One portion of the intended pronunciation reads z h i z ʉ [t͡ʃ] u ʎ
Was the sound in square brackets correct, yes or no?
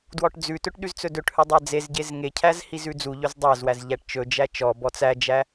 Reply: no